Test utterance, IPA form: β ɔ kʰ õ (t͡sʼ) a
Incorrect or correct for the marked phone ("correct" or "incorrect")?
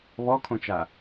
incorrect